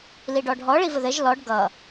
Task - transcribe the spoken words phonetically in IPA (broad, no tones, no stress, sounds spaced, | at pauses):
l i ɖ ɔ ɖʱ ɔ ɭ i v ə ð ɘ ʒ l ɔ ɖ ɡ ʌ